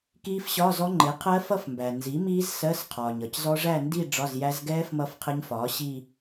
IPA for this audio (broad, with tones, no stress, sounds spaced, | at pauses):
k iː˦˥ f ɕ ɒ˧˥˧ z ɔ˦˥ ŋ͡ǃ ɪ˩˥ qʰ ɜ˦˥ f ʌ˥˧ f m b æ˩ n z i˩˥ m iː˦˥ z s ɜ˧˥˧ s qʰ ɒː˩ ɲ ʌ˩ c z ɔ˦˥ ʐ æ˥˧ n d i˥˧ ɖ͡ʐ ɒ˧˥˧ z j æ˦˥ z ɡ ɛː˦˥ f m ʌ˥˧ f qʰ ɪ˦˥ ɲ f ɒː˩˥ ɕ iː˥˧